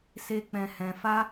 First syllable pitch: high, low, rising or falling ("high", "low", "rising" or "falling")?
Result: high